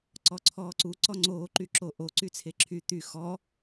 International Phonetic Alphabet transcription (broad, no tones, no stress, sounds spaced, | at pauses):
ǀ ɔ ǀʰ ɔː ǀ u ǀ ɔ ŋ͡ǀ oː ǃ y ǁ o ʔ o ǀ y t͡sʰ e ǁʰ y t̪ y x ɔ